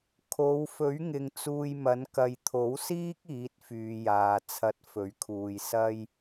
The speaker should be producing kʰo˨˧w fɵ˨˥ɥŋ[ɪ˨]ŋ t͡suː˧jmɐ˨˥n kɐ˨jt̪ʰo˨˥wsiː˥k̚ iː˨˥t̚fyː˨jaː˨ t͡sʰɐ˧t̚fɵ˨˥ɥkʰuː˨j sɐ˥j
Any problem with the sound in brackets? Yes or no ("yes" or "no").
no